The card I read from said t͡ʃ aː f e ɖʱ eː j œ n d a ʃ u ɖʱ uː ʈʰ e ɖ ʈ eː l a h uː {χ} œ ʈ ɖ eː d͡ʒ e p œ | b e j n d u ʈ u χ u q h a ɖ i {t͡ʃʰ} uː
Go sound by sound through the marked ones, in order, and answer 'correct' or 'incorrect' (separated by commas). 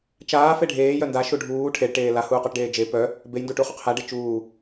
incorrect, incorrect